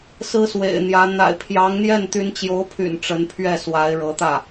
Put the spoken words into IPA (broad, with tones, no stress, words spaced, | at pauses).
sɹ̩˥swḛ˨˩ɪ̯n̪jä˧˥ n̪a̰˨˩ɪ̯pʰjɑ˧˥ŋn̪jɛ˥˩n t̪y˧˥nt͡ɕjo˧˥ʊ̯pʰy̰˨˩n ʈ͡ʂə˧˥npʰɥɛ˥˩swa˧˥ɪ̯ ɻɤ˧˥t̪ä˥˩